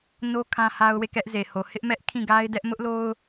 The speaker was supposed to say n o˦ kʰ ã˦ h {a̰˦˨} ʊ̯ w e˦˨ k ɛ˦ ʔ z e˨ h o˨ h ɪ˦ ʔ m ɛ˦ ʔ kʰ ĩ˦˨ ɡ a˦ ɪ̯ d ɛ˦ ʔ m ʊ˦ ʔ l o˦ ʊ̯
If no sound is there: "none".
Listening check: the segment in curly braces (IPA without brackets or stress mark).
a˦